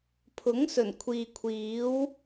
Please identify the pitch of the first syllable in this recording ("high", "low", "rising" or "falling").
rising